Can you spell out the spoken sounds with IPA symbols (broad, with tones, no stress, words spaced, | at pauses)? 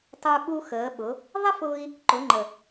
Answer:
tˤə˞˧ɓu˧ xəː˩˧ɓʊ˩˧ | ðˤə˥fʊː˧i̯ | ǃʊ˩˧ŋ͡ǃə˩